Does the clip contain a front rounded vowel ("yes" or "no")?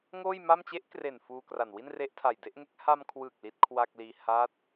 no